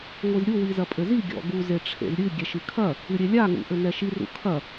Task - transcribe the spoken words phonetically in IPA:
ŋʷizɾʲu wizɐpʼɘzi ɡʲɔ̰ɡu zeʈ͡ʂʰḛzɾʲɨ ɡʲɛʃɨkʰɐ | ɨɾʲelʲa ŋṵʔɘnɛʃi rṵkʰɐ

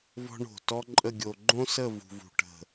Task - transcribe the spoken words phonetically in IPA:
vɔ̤˥ɳo̤˧˩ tɔ˥ǃʼə˥˧ɡʲo˧ ɡ͡ǃõ˥sə˥˧ vṳ˧vṳ˧ʈə̤˧˩

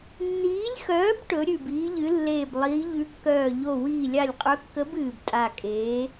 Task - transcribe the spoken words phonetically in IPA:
nːiː˨˥lʲxœː˨˥b ʈɵ˨˥ɾʲʉ˧˩biː˨˥ʎɨ˨˥ lːeː˧˩blˠiː˨˥ ʎʉ˨˥kːœː˧˩ʎo˧˩ wiː˧˩lʲa˧˩lʲqʼɵ˨˥kːə˨˥b ɨː˧˩btʼa˧˩kʼeː˨˥

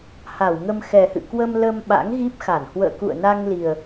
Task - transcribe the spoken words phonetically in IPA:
ha˧˩wŋə˧m xɛ˨˩hɨ̰˧˨kwə˧m ləː˧mɓa̰˧˥ŋɣi˦˥p̚xa˧˩n hwə̰ː˧˨kṵ˧˨ə̯na˧ŋli˨˩ə̯

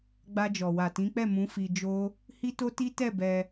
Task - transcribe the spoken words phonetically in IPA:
ɡ͡ba˧d͡ʒɔ˨wa˨ tĩ˨˦k͡pɛ˦˨mũ˨˦ fi˧d͡ʒo˦ | hi˦to˦ti˦tɛ˦˨ bɛ˧

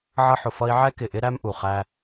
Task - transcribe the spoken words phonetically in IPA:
ʕʌ˧ħʊ˨fʌ˧i̯ ʕɛ˦kɪ˨ʔɪ˦ ɾæ˦mʔu˨ χæ˧

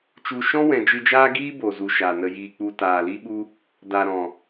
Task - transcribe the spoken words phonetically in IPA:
t͡ʃu˨ ʃɔ̃˦ wɛ̃˨d͡ʒɨ˧d͡ʒaː˦ ɡiː˦bo˨ zu˨ ʃa˨nə˧jiː˧k͡pu˧ taː˨li˦ɓu˦ | da˨ɾɔ̃˨

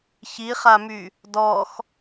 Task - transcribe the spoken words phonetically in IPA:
çiχamy | dɔx

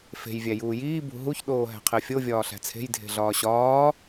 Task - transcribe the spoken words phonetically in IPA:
fe̤j vʲæjuːjiː bṳɦuç ɗoːɦæ̤qʰefʲo vʲɒːɬæ̤t͡sʰe̤j dʱe̤ɮɒːɕɒː

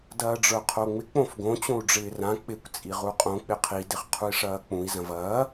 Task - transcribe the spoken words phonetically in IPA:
dɐːɖ͡ʐə˞qʰoŋ͡mɪ k͡põfɡõ t͡ɕõu̯ɖ͡ʐɪːrã k͡pɪkʷ t͡sʼiʁuqʼõ k͡pɪqʰi dɪχqʰui̯ʂɐːk͡pũi̯ zɐ̃vɐː

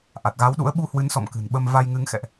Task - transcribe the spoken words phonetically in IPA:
ʔa˨˩t̚ɣa˨˦wɗṵ˧˥ə̯ ɓu˧hwɨ˨˦nsɔ̰˧˨m kɨ̤˨˩n ɓə˧m va˧jŋɨ˨˦ŋ xɛ̰˧˨ʔ

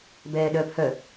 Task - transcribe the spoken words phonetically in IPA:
bɛːɗœːphœ

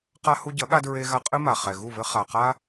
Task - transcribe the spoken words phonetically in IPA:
qa˧ hu˧ɟɐ˨˦ɠa˧ dɹe˧ɣa˧ qʼɨ˦ma˨ χɛ˨ɣu˦˨βɘ˦ χa˨ qa˦

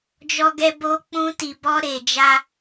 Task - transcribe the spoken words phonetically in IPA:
d͡ʒɔ˧ɡɛ˧ bo˧k͡pũ˧ti˨bɔ˧ ɾe˨d͡ʒa˧

